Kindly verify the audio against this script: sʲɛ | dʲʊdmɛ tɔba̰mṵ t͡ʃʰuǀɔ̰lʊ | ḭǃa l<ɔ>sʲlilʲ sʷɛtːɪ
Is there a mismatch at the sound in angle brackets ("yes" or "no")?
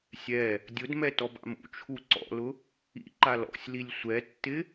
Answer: yes